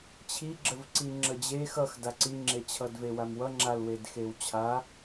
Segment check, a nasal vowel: absent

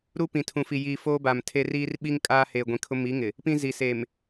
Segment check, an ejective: present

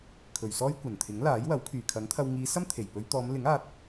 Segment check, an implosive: absent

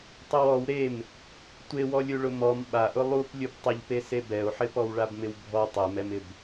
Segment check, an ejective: absent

